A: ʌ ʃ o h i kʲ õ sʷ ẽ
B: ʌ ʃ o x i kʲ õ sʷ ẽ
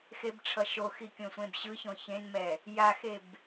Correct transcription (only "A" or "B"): B